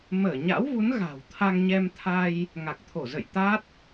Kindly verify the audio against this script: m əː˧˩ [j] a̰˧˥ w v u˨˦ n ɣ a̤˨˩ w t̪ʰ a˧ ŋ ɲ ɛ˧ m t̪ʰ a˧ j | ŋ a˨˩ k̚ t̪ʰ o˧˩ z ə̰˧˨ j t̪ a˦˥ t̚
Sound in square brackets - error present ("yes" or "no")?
yes